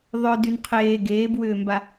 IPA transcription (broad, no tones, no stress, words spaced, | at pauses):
ðˤœdyn qʰeː ɡeːbwʏːmba